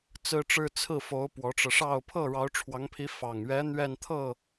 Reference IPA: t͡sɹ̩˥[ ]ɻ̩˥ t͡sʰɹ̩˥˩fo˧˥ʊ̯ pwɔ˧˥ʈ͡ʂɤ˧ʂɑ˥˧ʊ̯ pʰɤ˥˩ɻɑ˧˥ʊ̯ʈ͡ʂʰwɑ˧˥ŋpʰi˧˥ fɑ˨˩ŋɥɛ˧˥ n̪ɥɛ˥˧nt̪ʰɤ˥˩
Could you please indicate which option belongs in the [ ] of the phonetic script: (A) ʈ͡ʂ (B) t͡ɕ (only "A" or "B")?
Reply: A